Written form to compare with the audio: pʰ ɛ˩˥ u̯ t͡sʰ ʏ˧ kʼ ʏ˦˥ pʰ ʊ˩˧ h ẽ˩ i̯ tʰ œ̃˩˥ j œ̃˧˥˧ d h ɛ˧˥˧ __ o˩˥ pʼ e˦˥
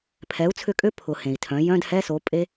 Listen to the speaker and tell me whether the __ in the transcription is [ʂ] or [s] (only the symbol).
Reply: s